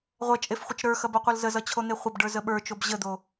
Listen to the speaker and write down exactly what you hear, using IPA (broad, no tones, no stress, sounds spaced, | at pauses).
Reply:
ʁʷ ɐ t͡ʃʼ e f χʷ ɐ t͡ʃ ɾ ə˞ x ɐ b ʌ qʷ ʌ l z ə z ʌ t͡ɕʰ o n̪ e χʷ ə b ɖ ə˞ z ə ɓ ə˞ t͡ʃ o b ʑ ə d̪ o